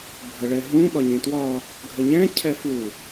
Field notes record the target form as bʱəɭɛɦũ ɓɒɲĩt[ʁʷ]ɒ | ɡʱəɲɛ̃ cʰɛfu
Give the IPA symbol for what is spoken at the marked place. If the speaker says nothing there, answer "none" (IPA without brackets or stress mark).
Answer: w